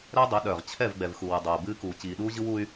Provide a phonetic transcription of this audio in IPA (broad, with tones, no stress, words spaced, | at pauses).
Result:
ɾɛ˦dˤœ˨˦ɗœː˨ʁ t͡ɕʰɛ˦˨vɡ͡bɛ˨vxu˨ wɯ˨dˤoː˨bɨː˦ kuː˨ t͡ɕiː˨ɗuː˦ʑɯ˦w u˦y̯